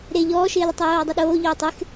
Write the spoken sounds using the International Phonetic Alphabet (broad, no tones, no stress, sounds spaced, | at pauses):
ɾ e ʎ ɔː ʃ ɪː l ɪ tˤ i j oː dˤ u ɗ oː ʎ ʊː tˤ ɪ x